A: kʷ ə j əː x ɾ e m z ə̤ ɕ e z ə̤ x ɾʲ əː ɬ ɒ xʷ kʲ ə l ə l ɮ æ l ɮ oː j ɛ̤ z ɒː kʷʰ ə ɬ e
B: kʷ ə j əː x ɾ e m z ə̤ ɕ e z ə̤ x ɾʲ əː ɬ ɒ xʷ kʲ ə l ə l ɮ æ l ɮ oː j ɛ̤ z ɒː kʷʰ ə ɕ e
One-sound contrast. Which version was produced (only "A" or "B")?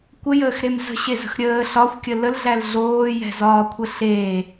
A